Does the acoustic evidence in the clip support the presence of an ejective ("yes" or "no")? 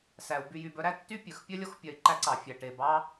no